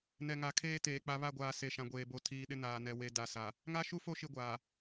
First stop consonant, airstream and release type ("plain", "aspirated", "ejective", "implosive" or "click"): aspirated